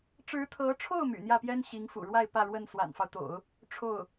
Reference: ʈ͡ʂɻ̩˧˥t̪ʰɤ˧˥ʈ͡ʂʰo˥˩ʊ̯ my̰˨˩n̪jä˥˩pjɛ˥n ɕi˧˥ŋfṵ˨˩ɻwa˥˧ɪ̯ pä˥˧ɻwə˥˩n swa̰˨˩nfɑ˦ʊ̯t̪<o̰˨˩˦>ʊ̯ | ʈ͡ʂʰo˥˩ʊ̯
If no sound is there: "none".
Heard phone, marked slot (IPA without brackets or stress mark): o̰˨˩˦